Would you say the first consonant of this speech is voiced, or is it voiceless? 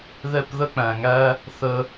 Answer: voiced